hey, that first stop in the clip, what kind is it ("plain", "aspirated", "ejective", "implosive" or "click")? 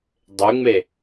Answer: plain